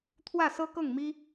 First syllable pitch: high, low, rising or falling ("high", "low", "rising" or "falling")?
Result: falling